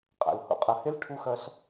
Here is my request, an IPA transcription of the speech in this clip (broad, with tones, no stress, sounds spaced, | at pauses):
qʼ a̰˨ l h o̰˦ qʼ ɐ˧ h e˦ l ʈʰ u˧ x ɐ˧ ɬ